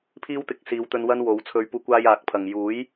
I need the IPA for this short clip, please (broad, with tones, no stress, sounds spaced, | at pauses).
pʰ iː˥ w t̪ ɪ˨˥ k̚ s iː˨˧ w t̪ ɵ˧ n w ɐ˥ n w o˨˧ w t͡sʰ ɵ˧ ɥ p uː˧ kʷ aː˥ j aː˨˥ k̚ pʰ ɐ˨ ŋ j uː˨˥ j